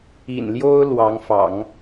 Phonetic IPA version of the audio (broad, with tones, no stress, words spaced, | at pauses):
ḭ˨˩nljo˥ʊ̯ lwɑ˧˥ŋfɑ̰˨˩˦ŋ